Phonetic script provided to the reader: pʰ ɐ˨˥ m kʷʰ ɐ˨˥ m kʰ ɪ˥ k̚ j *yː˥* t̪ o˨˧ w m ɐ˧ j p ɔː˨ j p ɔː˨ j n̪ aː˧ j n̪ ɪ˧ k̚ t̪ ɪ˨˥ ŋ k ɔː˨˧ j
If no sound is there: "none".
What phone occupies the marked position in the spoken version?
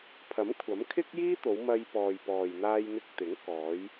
iː˥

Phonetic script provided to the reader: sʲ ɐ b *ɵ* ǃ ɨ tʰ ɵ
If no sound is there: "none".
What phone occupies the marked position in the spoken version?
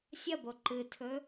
o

